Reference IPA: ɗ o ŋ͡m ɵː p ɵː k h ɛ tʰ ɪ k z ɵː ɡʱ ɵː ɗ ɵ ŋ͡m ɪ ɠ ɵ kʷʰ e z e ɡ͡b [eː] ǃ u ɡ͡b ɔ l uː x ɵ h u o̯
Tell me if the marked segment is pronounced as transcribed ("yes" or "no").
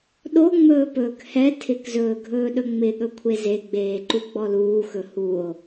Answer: yes